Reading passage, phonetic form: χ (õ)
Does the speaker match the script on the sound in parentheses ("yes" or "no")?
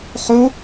no